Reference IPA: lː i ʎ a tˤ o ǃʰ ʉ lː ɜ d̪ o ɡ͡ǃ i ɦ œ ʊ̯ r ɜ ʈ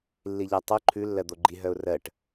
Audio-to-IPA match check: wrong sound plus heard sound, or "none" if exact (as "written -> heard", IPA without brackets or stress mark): none